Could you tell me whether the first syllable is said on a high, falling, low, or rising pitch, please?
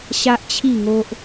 high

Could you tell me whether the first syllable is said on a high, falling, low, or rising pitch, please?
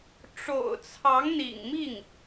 low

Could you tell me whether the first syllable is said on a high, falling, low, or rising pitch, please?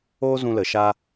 high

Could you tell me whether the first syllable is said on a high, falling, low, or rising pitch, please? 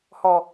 low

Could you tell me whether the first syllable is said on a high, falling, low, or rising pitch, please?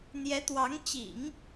rising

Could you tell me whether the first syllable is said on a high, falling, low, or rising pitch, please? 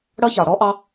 high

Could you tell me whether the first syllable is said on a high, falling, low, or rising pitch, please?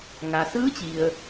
low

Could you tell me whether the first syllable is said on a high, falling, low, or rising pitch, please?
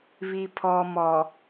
low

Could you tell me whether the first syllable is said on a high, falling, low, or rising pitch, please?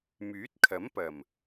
rising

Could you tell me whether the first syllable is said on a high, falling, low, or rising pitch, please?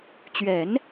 low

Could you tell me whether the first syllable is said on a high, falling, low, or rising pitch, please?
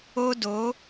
high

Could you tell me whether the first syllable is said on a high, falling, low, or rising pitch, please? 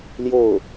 falling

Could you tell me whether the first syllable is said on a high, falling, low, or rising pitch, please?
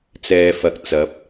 low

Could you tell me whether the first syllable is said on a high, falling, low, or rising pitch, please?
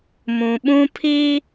low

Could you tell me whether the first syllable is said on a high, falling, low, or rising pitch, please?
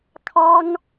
high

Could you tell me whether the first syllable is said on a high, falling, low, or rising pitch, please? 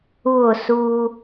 falling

